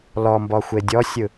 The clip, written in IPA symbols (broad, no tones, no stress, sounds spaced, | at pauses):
l ɔ m b ɔ xʷ e dʲ ɔ sʲ ɯ